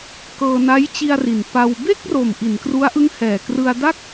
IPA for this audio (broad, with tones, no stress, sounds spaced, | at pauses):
k ɤː˧ n a˦˥ j t͡ɕ i˧ a̯ r i˨˩ n p a˧ w b e˥˩ k̚ r o˨˩ m ʔ i˩˦ n k r u˦˥ a̯ ʔ ɯ˦˥ ŋ h ɛː˨˩ k r ɯ˧ a̯ d a˥˩ k̚